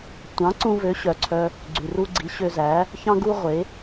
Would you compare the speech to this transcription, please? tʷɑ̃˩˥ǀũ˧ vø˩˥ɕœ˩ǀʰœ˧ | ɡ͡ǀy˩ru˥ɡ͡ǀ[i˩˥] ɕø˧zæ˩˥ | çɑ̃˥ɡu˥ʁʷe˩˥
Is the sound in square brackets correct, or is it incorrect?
correct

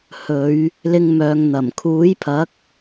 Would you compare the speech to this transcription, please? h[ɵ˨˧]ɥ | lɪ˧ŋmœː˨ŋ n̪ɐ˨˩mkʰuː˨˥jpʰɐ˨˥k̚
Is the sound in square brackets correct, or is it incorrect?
correct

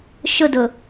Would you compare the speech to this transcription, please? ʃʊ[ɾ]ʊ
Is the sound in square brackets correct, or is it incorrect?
incorrect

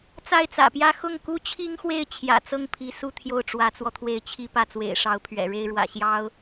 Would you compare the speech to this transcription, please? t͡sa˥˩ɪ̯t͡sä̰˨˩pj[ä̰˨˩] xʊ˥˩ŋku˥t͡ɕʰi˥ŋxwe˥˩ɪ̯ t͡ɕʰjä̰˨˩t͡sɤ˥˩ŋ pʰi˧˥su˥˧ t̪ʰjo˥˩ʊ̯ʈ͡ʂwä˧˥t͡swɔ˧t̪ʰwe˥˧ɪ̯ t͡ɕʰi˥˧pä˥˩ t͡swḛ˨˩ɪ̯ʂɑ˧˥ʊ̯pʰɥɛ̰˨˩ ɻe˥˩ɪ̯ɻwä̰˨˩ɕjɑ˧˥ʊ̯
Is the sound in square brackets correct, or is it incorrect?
incorrect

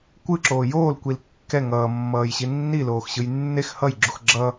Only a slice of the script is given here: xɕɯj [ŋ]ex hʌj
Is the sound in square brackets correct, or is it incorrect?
incorrect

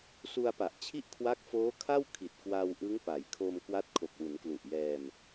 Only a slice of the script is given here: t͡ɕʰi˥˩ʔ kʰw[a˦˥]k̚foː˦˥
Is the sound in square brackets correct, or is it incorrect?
correct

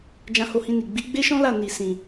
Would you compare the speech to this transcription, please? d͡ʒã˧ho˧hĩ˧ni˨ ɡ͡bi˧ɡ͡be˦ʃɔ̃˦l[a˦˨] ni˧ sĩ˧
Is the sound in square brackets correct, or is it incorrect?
correct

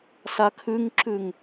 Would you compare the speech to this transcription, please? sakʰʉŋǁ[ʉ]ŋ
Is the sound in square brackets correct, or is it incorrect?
correct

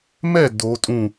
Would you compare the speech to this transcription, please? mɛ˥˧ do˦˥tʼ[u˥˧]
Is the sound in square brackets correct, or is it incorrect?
incorrect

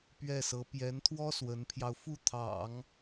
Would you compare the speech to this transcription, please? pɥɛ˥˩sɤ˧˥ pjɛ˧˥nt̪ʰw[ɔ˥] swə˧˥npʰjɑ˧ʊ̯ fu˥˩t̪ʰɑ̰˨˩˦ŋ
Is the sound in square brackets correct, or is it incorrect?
correct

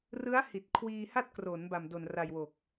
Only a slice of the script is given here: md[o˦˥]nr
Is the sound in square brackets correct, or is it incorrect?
incorrect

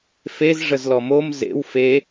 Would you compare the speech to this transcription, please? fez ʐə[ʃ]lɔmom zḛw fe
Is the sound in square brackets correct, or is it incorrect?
incorrect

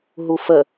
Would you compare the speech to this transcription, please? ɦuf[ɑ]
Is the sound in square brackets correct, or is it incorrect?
incorrect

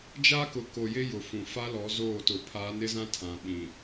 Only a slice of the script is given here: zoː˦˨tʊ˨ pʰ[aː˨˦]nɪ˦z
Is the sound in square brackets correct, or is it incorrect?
correct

